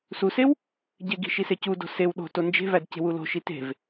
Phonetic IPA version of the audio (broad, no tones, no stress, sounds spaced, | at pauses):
s u s e w | ɟ e ɡ i̤ ʃ i s e c u d o̤ s e w ɗ o̤ t o n d͡ʒ e̤ v æ d c e̤ w u l o̤ ʃ i t e̤ v